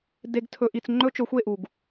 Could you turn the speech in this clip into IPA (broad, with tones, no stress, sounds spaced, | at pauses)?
d e˨ ɡ tʰ ɵ˨ ʔ i˨ t͡s ŋ͡ǃ ɵ˦ t͡ʃ ɵ˨˦ xʷ e˦˨ ʔ u˨ ɡ